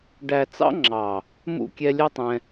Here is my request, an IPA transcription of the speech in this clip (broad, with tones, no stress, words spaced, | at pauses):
ɖæ˨ t͡sɑ̰˦ ŋ͡ǁɑ˨ | mṵ˦˨kʲɛ˧lʲɛ˦tˤɛ̃˧